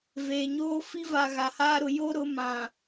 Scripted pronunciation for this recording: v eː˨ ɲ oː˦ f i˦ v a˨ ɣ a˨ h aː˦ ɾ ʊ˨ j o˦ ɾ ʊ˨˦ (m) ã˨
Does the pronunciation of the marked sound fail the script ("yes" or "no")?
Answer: no